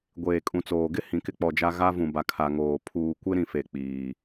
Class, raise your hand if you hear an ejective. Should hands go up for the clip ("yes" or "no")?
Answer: yes